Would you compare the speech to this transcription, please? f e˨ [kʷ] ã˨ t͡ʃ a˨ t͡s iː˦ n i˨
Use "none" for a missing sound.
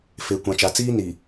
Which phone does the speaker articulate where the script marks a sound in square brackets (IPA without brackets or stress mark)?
kʷ